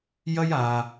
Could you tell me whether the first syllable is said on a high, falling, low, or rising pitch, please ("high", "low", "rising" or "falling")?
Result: high